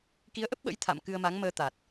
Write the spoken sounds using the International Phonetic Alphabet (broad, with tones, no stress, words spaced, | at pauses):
ki˨˦ə̯ʔə˦˥p̚ɓə̰˧˥j t̪ʰa̰˧˨m kɨ˧ə̯ma˨˦ŋməː˧ t̪a˨˩t̚